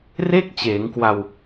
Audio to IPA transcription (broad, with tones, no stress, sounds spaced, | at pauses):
r e˥˩ k̚ t͡ɕ eː˩˦ ŋ k w a˧ w